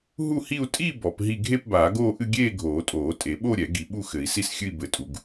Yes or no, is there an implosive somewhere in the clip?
yes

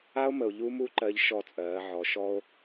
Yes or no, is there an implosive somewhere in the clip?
no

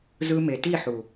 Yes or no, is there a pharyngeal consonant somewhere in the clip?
yes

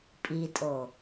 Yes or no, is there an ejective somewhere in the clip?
yes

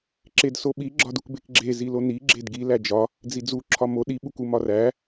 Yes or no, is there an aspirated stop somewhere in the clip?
yes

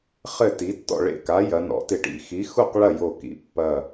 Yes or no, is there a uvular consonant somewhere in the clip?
yes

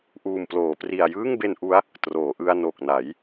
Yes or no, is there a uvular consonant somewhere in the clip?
no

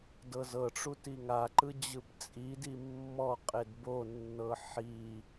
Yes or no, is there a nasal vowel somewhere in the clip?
no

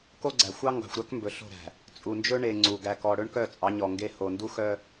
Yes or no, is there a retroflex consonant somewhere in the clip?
yes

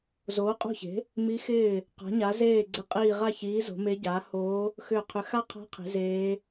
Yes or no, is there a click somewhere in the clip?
yes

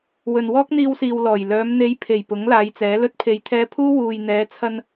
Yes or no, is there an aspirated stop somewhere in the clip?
yes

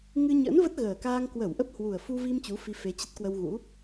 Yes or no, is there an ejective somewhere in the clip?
no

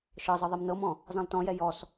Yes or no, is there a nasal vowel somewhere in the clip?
yes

